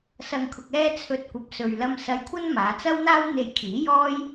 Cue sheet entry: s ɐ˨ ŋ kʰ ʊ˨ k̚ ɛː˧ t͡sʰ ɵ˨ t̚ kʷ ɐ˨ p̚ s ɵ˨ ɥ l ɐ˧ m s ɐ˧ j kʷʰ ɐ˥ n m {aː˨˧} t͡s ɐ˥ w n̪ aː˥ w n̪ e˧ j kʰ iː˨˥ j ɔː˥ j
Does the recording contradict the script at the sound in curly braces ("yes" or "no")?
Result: no